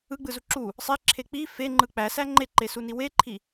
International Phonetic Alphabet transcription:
ɯ ɡ͡b ɯ z u ǁ u | sˤ e ǁʰ e k͡p i f e ŋ͡ǃ ɯ k͡p æ s æ ŋ͡ǃ e ǃ e s u n i w e ǃʰ i

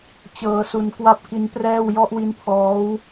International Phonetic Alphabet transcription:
t͡ɕ ɤː˧ s u˧ n k w a˥˩ p̚ k i˦˥ n p r ɛː˥˩ w j ɔ˦˥ ʔ w i˦˥ n pʰ ɔː˦˥ w

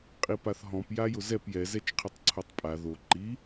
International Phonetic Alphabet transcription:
qʼ i p a θ ɦ ɔ̃ p j a j ʊ z ɛ p j ɛ z ɛ t͡ʃ qʰ i tˤ ǀʰ o tˤ pʼ a ð o ǃ i

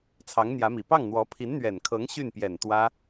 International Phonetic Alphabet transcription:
t͡sʰ ɑ˧˥ ŋ n̪ j ä˧˥ m i˨˩ p ɑ˥˩ ŋ n̪ w ɔ˧˥ pʰ i˧˥ n n̪ ɥ ɛ˨˩ n kʰ ɤ˧˥ ŋ ɕ y˥˩ n p j ɛ˨˩ n t̪ w ä˥

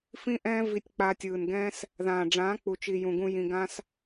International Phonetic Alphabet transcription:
f ĩ˦ ʔ ɛ̃ː˦ v i˧ tʲ k͡p a˧ tʲ ɯː˨ n ɡ ɛ̃ː˦ s | ð ãː˨ ɖ͡ʐ ãː˨˦ k͡p u˨ t͡ʃ i˨ j ũ˨ ɡ ũ˧ j ĩ˧ ɡ ã˦ s

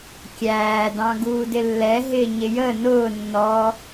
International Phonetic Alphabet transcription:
kʲ æː d ɑ̃ ɡ uː d ɪ lː ɛ ɦ ɪː ɲ ɪ j ə n ʊː nː ɔ

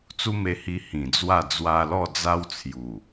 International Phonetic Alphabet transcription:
t͡s u˦ m e˧ h i˧ h ĩ˨˩ d͡z w a˥˧ d͡z w a˧ l ɔ˥˧ d͡z a˦ w t͡sʰ j u˨˩

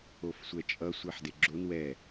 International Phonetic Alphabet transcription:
o f sʷ ɛ t͡ʃʼ ʌ sʷ i ħ d e ɡ͡ǁ o n w ɛ

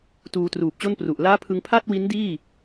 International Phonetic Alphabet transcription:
t uː˧ t r uː˨˩ p̚ t͡ɕ o˥˩ n p r u˨˩ ʔ l aː˦˥ pʰ ɯ˧ ŋ pʰ a˥˩ t̚ w i˦˥ n d iː˥˩

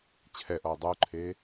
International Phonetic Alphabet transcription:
t͡ɕʰ ɛ ʔ ɔ ʊ̯ dˤ u ǃʰ e

